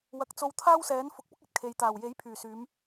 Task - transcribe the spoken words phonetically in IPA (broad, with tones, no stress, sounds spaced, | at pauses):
w ɐ˨ k̚ t͡s o˧ w t̪ʰ aː˥ w s ɛː˨˥ n f ʊ˨˥ k̚ p ʊ˥ k̚ ɐ˨ t̚ kʰ e˨ j t̪ aː˨˩ w j e˨˥ j pʰ yː˨˩ s yː˨˧ m